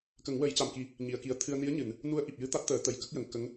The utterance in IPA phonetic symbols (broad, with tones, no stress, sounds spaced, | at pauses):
k ə˨˩˦ ŋ w ə˨˩˦ j c a˨˩ m k i˨˩˦ | ɲ i˨˩˨ ə̯ k i˨˩ ə̯ t̪ʰ ɨ˧ ə̯ n i˧˥ ə̯ ɲ ɨ˨˩˨ n | n u˧˥ ə̯ ʔ i˨˩ p̚ j ɨ˧˥ t̪ a˦˥ t̚ t̪ əː˨˩˦ t̪ ə˨˩˨ j k ə˦˥ k̚ j ə˨˩˨ ŋ k ə˧˥ ŋ